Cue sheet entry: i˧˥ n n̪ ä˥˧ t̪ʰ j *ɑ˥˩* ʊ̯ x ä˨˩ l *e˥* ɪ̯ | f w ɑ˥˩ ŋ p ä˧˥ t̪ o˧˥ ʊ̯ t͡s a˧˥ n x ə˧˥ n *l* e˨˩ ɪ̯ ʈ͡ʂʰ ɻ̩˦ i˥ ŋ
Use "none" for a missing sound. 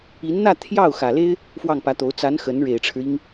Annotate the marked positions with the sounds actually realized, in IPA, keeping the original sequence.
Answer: ɑ˥˩, e˥, ɻ

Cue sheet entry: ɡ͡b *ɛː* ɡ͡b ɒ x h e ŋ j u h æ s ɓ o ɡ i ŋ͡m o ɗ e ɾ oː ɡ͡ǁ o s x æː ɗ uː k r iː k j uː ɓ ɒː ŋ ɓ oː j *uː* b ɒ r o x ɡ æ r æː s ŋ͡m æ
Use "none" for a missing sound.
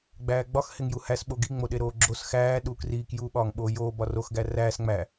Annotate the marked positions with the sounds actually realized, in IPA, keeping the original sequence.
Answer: æː, oː

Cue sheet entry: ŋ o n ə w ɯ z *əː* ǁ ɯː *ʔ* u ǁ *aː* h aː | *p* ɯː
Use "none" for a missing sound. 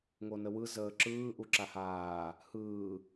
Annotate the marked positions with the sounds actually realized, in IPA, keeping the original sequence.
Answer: əː, ʔ, a, h

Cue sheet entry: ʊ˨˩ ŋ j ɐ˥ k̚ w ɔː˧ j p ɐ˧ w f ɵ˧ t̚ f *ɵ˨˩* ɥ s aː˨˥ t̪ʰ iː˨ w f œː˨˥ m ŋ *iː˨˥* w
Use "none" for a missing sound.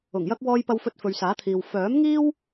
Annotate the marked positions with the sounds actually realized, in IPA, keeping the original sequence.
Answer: ɵ˨, iː˥

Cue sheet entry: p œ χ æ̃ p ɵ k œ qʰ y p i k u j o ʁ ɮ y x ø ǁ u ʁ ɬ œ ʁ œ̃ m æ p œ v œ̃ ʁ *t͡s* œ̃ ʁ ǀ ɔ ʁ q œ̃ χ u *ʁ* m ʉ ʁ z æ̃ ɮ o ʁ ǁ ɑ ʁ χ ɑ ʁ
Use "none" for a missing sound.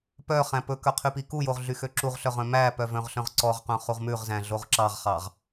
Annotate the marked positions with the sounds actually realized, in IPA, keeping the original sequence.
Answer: ɬ, ʁ

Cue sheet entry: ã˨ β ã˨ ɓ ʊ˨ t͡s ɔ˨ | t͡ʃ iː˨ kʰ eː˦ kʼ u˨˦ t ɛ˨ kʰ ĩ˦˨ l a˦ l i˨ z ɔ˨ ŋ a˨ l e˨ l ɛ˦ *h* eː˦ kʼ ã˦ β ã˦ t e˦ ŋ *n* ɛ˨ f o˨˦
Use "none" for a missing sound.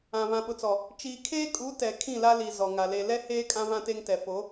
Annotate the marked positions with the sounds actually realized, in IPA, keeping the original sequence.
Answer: h, t

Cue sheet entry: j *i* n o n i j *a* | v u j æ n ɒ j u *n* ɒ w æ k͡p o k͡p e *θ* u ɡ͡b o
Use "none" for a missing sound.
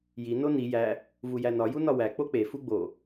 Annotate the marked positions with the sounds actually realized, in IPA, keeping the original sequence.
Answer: i, æ, n, f

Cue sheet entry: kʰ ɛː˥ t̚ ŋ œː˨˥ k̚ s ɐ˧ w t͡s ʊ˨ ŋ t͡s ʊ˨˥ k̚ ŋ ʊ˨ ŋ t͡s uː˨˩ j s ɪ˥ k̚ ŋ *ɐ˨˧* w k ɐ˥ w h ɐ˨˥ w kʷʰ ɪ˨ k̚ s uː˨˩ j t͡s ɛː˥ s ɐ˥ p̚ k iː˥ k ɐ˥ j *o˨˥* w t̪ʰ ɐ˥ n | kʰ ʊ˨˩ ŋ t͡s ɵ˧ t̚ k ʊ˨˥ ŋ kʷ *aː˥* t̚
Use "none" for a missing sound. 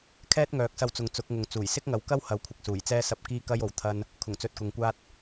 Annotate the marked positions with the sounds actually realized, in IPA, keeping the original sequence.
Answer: ɐ˨˧, o˨˥, aː˥

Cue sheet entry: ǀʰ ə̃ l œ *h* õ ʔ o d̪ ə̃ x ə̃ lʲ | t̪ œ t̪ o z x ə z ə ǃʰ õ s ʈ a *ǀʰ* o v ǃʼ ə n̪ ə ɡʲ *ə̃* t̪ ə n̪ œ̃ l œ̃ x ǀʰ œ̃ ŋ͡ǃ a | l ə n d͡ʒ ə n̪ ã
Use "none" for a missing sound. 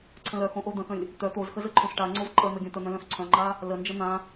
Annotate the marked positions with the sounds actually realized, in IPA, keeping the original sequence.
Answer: x, ŋ͡ǀ, œ̃

